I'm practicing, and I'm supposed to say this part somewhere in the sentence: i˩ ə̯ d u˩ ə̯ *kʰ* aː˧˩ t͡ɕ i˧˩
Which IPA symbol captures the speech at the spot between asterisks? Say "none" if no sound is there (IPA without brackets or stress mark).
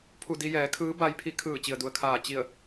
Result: kʰ